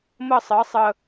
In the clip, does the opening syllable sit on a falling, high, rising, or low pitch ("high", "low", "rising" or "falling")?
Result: falling